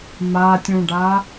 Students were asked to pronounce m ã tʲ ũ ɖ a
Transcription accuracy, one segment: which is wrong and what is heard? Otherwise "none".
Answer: ã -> a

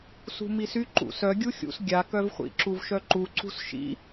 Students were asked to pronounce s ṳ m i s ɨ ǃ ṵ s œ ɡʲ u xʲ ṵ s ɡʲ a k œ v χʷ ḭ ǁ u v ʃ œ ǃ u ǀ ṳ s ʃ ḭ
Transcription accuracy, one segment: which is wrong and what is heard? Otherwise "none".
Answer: ɨ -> y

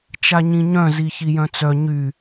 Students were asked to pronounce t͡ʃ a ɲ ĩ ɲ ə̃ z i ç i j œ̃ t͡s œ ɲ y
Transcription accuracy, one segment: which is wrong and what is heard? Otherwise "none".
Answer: ə̃ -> œ̃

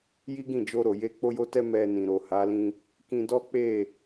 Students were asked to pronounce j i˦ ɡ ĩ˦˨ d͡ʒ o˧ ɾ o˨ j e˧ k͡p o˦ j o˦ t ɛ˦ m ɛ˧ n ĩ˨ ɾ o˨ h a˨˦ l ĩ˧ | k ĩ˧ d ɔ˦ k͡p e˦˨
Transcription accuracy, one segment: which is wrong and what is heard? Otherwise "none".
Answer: none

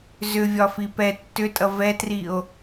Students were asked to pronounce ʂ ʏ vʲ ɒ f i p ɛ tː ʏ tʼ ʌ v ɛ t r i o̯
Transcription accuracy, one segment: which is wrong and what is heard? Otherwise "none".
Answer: ʂ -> z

